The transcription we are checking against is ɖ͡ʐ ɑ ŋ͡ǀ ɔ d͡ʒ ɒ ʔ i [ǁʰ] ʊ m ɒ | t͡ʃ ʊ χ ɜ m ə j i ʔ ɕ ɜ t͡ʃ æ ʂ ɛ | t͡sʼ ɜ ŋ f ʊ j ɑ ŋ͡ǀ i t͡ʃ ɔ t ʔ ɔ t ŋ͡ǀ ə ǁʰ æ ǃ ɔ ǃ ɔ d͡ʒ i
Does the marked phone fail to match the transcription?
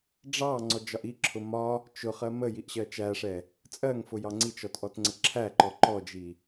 no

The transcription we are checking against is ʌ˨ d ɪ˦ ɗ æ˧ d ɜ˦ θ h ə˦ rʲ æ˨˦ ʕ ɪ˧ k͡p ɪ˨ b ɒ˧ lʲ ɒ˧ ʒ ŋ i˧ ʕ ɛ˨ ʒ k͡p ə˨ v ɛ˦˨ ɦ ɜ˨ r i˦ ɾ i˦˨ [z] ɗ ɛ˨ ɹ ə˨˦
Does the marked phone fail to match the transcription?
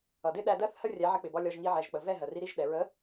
yes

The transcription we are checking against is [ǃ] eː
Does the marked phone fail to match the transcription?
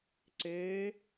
yes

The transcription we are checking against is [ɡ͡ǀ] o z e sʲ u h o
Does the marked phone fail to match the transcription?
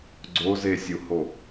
no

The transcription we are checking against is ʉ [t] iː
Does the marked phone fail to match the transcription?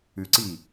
yes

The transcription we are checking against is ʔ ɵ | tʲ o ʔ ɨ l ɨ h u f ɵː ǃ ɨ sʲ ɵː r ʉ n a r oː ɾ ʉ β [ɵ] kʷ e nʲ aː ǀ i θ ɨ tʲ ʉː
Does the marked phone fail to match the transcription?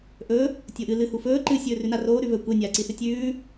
no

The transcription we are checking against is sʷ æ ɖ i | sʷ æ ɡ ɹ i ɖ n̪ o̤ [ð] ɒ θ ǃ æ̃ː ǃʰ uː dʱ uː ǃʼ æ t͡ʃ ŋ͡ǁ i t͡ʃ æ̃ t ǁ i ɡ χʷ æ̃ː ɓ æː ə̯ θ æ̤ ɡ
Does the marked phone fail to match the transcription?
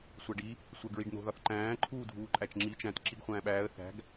no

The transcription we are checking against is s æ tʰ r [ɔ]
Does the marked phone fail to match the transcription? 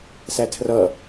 yes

